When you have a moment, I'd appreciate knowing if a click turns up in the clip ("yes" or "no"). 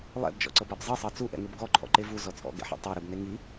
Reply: yes